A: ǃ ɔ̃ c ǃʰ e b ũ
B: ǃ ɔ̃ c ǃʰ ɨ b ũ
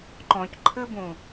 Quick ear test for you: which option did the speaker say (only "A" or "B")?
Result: B